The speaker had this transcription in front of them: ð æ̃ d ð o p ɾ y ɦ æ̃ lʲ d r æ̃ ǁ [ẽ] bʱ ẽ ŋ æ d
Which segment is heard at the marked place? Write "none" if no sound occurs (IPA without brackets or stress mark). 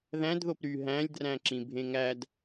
ĩ